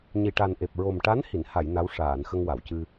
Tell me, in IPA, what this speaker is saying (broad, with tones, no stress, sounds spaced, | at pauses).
ɲ i˨˩ ʈ a˨˩ n ʔ e˨˩ p̚ ɹ o˨˩ m ʈ a˧˥ n h i˨˩˨ n h a˨˩˨ j n a˧˥ w ʂ aː˨˩˨ n x ə˧ ŋ w a˨˩˨ w c ɨ˧